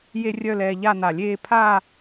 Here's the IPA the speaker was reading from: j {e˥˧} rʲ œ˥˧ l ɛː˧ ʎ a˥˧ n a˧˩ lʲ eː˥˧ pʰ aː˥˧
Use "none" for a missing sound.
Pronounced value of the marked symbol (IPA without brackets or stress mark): e˥˧